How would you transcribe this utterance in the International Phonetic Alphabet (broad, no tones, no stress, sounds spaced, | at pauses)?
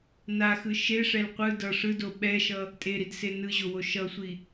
n a x ɯ ʃ e ʂ ɛ l qʷ ɯ d ʌ ʂ ɯ d o ɓ ɛ ʃ ʌ | tʼ e ɾ i d s e n ɯ ʑ o w o ʃ ʌ sʷ i